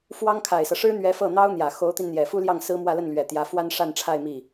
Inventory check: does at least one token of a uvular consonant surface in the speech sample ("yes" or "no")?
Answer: no